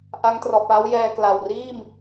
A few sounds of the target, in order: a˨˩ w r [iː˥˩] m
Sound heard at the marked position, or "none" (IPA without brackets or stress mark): iː˥˩